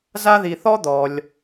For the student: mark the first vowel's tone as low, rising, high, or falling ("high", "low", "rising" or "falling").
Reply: high